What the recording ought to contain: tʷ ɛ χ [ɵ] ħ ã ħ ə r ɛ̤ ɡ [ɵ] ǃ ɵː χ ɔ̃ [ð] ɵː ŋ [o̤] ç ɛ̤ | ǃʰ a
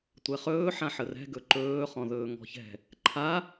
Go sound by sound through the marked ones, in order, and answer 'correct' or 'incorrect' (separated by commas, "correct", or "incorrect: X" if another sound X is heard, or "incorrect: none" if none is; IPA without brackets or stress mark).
incorrect: ɵː, correct, correct, incorrect: ɔ̤